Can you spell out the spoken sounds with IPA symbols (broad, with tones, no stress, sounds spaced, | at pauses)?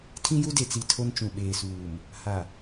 tʰ ĩ˦ j u˦ d e˨ t͡s i˨ tʰ o˦ n t͡ʃ ũ˨ ɓ eː˨ s uː˨ m | h a˨